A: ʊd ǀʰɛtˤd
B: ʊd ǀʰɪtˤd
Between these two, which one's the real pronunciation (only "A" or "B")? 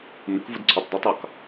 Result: B